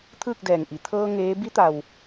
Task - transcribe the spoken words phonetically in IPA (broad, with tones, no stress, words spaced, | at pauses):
t̪ʰɯː˥˨k̚dɛː˧˩ŋʔi˧˩ t̪ʰɤː˧ ŋeː˧˥ bi˧˥t̪a˩w